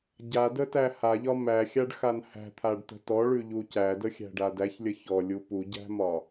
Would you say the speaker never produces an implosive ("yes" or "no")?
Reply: yes